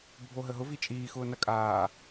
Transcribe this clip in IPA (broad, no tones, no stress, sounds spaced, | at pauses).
bʱ o ɦ ə ɦ ʊ v i t͡ʃʼ iː x ʊː n ɐ kʼ aː